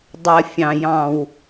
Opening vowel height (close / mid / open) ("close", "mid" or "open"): mid